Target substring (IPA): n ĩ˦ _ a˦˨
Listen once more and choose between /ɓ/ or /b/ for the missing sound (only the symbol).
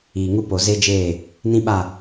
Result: ɓ